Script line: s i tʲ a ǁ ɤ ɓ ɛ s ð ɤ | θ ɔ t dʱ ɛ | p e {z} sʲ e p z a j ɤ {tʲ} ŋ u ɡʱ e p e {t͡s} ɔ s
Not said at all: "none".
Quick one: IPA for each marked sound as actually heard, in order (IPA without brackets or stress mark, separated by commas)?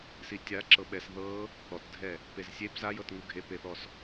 z, t, θ